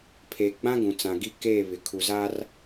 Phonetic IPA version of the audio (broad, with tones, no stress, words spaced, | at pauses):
pʰeː˨ɡ͡bã˦ ɡũ˨ t͡sã˨ɡi˦ keː˦˨βɪ˨ kʰu˨zaː˦r